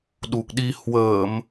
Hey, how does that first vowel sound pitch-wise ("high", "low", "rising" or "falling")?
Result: low